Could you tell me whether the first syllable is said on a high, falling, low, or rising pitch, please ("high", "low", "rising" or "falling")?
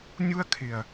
high